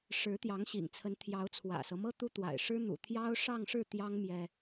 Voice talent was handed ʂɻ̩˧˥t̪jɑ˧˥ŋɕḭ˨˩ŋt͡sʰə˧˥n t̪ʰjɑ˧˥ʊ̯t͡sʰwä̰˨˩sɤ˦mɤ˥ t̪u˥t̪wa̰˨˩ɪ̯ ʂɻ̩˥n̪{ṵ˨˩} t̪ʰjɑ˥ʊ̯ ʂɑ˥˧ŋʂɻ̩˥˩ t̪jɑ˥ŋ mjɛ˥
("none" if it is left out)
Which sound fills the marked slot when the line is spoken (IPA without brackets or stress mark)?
ṵ˨˩